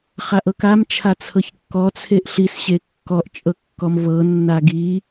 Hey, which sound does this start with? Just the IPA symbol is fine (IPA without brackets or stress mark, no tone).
χ